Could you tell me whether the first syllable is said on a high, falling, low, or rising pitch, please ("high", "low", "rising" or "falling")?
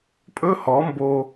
high